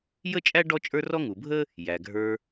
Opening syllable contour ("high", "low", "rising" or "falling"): high